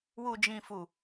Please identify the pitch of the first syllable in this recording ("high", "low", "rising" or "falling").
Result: low